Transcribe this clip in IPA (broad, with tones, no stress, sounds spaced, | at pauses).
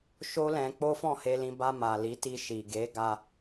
ʃ o˦ l ɛ̃˧ k͡p o˦ f ɔ̃˦˨ h e˧ l ĩ˧ b a˧ m a˨ l i˨˦ t i˧ ʃ i˨ ɡ e˨˦ ɡ a˧